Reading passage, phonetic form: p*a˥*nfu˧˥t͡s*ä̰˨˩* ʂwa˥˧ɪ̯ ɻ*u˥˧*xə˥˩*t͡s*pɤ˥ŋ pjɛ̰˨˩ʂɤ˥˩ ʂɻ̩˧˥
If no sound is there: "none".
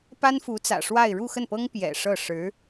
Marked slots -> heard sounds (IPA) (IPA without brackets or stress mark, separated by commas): a˥, ä̰˨˩, u˥˧, n